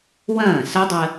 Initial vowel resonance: nasal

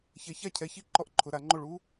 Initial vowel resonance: oral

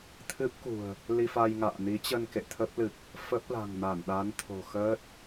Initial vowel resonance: oral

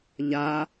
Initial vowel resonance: oral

